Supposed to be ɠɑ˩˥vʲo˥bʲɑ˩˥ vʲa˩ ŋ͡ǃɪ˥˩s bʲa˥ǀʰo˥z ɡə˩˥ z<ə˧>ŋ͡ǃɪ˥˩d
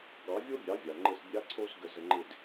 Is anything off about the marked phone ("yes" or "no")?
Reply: no